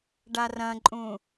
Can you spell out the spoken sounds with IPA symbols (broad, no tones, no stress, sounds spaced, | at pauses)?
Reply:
ɖ a r ɐ̃ ǃʼ ũ